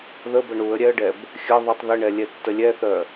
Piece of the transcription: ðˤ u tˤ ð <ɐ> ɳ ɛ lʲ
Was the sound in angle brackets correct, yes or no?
no